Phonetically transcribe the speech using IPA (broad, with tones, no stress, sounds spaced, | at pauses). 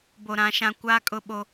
b o˨ ɾ ã˨˦ ʃ ã˦ kʷ aː˦ kʼ ʊ˦ ɓ o˦